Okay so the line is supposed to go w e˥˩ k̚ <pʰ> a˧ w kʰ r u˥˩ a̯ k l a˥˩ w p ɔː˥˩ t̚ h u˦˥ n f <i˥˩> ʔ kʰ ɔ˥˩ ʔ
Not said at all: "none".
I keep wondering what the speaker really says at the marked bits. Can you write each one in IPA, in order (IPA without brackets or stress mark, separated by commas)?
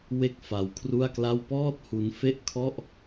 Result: f, e˥˩